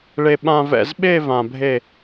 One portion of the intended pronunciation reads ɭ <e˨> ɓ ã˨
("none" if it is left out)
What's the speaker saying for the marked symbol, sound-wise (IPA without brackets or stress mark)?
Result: e˨